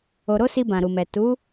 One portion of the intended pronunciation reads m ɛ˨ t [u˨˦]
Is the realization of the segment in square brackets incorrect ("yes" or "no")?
no